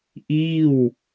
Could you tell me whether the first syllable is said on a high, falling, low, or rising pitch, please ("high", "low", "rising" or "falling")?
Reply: falling